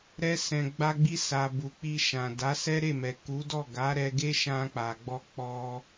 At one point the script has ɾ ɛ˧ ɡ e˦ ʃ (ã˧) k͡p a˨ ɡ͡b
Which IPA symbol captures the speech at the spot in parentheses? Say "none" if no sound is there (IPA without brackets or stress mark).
ã˧